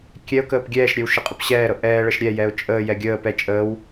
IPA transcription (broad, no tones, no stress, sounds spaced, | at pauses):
kʲ ɛ ʊ̯ k əː p ɡʲ ɛː ʃ ɾʲ ɛ w ʃ ə qʼ ə p ɕ ɛː ɾ ɤ ʔ ɛː ɭ ə ʃ ɾʲ ɛ j ɛ ʊ̯ t͡ʃʼ əː j ɛ ɡʲ əː p ɛ t͡ʃʼ əː w